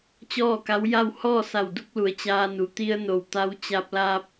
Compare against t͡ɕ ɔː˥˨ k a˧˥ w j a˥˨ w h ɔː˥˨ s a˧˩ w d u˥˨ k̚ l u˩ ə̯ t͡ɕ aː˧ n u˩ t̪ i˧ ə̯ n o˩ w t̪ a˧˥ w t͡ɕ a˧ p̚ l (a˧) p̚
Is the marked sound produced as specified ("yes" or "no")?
no